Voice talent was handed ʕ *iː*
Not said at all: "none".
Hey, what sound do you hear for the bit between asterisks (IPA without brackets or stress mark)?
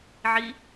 i